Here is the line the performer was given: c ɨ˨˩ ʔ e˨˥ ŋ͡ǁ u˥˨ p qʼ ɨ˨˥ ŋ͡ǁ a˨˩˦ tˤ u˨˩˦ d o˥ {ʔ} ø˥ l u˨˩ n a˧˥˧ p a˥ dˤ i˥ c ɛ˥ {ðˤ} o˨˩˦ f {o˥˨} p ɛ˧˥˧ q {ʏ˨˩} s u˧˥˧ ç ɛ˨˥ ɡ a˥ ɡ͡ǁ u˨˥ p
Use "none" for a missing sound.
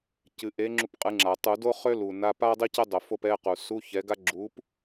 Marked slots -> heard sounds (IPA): χ, dˤ, o˥˨, u˨˩

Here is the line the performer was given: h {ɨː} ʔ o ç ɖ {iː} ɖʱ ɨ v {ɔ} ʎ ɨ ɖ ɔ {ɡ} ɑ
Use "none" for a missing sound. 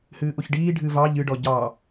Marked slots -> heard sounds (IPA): ɨː, iː, ɑ, ɟ

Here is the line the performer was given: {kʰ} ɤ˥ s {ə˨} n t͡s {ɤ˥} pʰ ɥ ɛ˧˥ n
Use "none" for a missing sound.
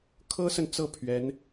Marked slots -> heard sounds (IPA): kʰ, ə˨, ɤ˥˩

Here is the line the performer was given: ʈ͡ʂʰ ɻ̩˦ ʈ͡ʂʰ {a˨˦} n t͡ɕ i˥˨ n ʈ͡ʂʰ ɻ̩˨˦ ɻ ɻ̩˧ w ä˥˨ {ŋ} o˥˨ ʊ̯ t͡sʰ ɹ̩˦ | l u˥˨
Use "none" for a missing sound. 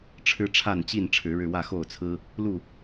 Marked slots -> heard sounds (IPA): a˥˨, x

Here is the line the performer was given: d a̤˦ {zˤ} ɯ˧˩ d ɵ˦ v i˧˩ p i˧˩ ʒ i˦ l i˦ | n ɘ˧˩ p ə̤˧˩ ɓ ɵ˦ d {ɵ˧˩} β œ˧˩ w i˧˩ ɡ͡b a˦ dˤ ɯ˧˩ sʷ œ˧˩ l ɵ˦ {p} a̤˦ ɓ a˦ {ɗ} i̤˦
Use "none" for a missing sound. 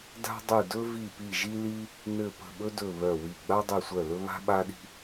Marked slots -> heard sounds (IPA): dˤ, ɵ˧˩, β, ɗ

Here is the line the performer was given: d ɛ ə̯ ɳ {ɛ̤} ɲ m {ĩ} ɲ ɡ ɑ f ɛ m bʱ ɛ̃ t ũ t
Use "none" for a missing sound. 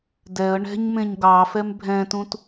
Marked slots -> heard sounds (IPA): ɛ̤, ẽ

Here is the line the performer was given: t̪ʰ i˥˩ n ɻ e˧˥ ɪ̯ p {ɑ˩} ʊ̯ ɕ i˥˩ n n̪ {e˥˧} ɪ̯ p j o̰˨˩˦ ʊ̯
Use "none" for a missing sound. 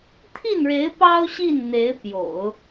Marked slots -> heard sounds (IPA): ɑ˥, e˧˥

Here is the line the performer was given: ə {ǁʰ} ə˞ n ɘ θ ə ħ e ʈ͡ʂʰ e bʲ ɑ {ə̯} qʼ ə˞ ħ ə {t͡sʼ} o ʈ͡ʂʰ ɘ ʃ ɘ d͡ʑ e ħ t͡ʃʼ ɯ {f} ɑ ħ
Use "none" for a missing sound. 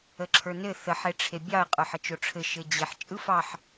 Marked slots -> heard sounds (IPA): ǁʰ, ə̯, t͡ʃ, f

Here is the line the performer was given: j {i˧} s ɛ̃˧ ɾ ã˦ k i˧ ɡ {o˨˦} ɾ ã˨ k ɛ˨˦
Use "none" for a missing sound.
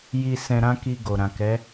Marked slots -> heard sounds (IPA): i˧, o˨

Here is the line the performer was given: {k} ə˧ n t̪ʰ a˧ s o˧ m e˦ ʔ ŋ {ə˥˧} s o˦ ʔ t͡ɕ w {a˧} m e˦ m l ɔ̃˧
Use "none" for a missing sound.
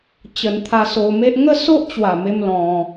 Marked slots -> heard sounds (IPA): t͡ɕ, ə˦, a˨˩

